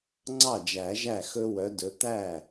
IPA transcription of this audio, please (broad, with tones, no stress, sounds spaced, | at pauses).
ŋ͡ǀ ɑ˥˩ d͡ʒ æ˨˩˦ ʒ æ˥˩ x ɵ˦ w œ˨˦ d ɵ˨˦ t̪ æ˥˩